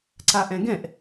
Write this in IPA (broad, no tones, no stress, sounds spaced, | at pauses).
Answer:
ǀ a ʔ ɛ̃ ɡ ɛ̃ ʔ